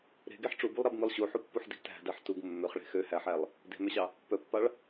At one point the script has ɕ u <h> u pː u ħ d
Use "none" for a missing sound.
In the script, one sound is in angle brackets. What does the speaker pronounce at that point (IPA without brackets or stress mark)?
ħ